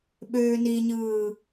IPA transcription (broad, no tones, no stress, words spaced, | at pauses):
ɓøːniɲɯː